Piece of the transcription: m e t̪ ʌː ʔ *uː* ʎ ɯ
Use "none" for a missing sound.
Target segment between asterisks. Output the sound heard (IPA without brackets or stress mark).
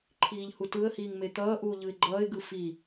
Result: uː